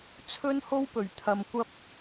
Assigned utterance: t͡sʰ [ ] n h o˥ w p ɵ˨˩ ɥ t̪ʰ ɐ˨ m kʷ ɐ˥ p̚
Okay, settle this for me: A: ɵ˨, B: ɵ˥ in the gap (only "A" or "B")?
B